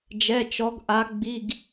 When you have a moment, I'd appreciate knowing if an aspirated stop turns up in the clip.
no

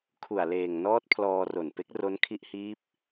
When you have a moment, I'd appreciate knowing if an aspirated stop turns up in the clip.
yes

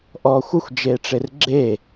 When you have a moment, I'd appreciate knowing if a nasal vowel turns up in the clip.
no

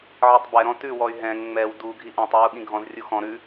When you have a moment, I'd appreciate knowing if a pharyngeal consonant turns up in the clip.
yes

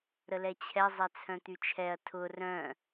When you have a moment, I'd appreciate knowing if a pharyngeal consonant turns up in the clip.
no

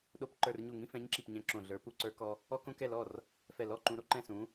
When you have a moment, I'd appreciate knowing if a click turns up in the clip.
yes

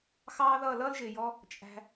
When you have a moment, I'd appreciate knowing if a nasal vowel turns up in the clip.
no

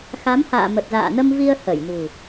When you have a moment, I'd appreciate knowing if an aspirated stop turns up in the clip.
no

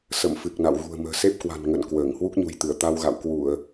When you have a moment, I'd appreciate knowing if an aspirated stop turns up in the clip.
no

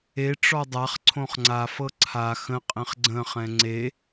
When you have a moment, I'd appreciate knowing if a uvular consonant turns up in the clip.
yes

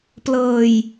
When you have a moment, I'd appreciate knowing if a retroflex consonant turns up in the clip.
no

